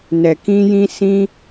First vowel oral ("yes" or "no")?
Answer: yes